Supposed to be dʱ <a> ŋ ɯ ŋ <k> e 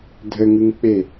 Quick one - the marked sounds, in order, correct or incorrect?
incorrect, incorrect

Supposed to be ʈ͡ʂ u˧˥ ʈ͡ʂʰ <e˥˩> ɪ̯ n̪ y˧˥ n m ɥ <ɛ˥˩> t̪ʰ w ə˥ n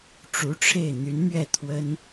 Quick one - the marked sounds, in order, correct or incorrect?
correct, correct

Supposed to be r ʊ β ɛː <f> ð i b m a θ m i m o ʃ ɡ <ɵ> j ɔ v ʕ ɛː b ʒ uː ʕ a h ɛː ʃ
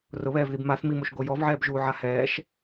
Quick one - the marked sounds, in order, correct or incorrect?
incorrect, incorrect

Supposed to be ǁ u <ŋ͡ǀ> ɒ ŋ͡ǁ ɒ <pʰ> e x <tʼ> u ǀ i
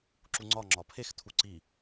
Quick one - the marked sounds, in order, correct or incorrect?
correct, correct, incorrect

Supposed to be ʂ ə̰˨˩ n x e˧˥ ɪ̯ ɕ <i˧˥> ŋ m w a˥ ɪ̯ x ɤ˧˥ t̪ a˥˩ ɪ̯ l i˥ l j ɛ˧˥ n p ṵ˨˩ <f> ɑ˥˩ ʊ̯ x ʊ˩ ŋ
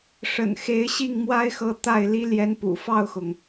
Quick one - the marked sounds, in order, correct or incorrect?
incorrect, correct

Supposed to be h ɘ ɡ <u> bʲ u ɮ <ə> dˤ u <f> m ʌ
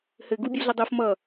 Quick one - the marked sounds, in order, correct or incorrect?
correct, correct, correct

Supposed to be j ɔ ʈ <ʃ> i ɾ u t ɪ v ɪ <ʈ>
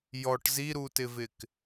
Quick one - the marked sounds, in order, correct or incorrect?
incorrect, incorrect

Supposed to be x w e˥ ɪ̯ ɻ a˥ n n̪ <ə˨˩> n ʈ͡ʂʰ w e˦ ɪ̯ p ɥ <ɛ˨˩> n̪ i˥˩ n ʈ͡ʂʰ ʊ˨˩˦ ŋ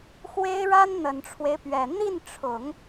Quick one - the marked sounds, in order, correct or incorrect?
correct, correct

